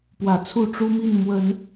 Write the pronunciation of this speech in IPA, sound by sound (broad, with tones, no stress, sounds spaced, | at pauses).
p w ä˨˦ t͡sʰ u˥˨ ʈ͡ʂ u˦ m i˥˨ n m w ə˨˦ n